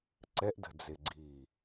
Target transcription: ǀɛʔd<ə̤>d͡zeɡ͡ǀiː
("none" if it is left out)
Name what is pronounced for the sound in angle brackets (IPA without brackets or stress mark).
ə̤